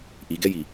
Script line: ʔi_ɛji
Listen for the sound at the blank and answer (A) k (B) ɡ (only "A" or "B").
B